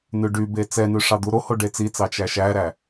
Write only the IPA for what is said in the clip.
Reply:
nʉɖybe t͡sɛnʉ ʂɑd̪uɾoho ɖet͡sit͡sɑ t͡ʃæʃæɾæ

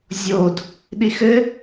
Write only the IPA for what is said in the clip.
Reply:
zʲod | ɗixɘ

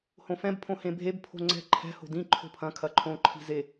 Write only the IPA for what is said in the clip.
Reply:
hõfɛ̃b pʰõhẽbʱeb pʰo̤ŋ͡ǀɛ̤ ǃʰɛ̤ ho̤dĩ ǃʰo̤pʰɐ̃ kʰɐǃʰõ ǃʰi̤ze

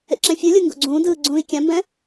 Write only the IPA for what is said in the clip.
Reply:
ḛǁɛ̃fʲulʲu ŋɡo̰ɡ͡ǀũːdɯː ɡ͡ǀũːi̯kʲãmbɛ̃

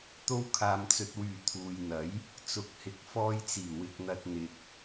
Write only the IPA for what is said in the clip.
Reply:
t̪o˧wkʰaː˨mt͡sɵ˨t̚wyː˨˩ t̪ʰuː˨jn̪ɐ˨˥j | t͡sʊ˨˥k̚hɪ˨˥k̚ fɔː˧jt͡siː˨˩ wɪ˨k̚n̪ɐ˨t̚ n̪ɪ˨k̚

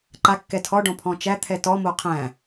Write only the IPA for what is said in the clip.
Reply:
ǃa kːɛtʰɔɖɔ̃ pʰɔ̃t͡ʃæ t̪ʰɛtɔmo qʰæ̃

